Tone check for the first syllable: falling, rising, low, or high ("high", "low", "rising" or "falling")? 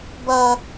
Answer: high